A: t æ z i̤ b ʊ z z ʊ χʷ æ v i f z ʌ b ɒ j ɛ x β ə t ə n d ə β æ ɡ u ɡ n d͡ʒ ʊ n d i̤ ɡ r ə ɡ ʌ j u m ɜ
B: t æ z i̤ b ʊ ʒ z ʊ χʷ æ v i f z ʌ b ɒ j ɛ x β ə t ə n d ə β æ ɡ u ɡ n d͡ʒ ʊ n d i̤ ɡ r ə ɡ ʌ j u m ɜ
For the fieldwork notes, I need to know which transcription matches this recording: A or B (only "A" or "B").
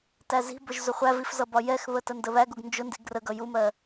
B